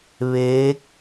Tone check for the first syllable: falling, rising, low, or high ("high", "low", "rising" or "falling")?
rising